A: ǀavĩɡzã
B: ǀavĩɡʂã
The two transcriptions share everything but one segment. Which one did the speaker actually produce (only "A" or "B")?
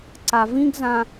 A